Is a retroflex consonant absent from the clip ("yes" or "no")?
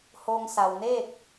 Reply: yes